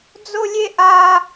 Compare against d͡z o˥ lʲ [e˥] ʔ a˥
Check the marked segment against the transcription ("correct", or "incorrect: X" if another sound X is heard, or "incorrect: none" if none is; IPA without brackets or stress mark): correct